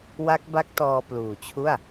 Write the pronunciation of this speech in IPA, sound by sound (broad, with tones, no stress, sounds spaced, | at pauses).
w a˦˥ k̚ b a˦˥ k̚ t ɔː˧ p l uː˨˩ t͡ɕʰ u˥˩ a̯